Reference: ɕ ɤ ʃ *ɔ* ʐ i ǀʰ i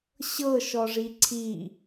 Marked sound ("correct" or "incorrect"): correct